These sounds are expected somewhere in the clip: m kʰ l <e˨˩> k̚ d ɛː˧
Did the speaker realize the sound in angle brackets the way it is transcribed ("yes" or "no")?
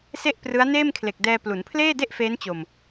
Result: yes